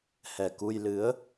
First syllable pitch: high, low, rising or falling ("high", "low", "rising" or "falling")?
low